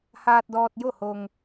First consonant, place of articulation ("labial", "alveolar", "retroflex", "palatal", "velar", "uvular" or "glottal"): glottal